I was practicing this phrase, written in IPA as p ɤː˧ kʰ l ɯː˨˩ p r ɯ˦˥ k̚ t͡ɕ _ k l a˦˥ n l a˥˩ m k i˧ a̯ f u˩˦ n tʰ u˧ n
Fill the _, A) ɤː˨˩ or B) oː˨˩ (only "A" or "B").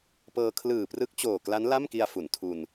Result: B